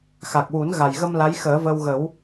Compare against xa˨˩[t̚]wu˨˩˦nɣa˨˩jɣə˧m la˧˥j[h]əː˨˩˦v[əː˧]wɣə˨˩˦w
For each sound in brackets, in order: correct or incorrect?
incorrect: k̚, incorrect: x, correct

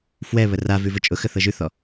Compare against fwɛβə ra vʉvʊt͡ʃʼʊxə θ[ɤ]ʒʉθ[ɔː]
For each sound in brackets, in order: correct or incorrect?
correct, incorrect: ɔ

